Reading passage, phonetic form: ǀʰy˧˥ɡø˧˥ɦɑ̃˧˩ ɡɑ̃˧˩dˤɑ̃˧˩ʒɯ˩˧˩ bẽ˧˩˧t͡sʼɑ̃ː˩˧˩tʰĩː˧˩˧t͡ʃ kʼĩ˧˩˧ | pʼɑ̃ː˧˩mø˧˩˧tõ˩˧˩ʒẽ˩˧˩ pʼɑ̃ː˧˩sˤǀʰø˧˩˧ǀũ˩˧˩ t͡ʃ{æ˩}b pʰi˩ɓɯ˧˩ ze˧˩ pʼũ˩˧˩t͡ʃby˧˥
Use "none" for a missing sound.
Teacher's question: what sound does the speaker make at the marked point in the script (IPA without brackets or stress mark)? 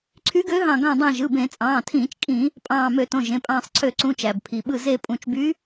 æ˩